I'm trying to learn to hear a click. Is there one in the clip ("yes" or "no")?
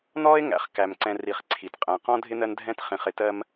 yes